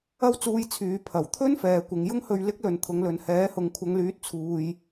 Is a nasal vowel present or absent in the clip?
absent